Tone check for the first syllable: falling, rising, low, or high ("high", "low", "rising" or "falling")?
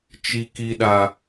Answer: low